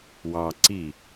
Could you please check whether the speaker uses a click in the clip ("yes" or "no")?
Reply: yes